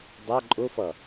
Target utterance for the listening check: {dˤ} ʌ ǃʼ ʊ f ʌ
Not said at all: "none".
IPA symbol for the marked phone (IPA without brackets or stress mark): dˤ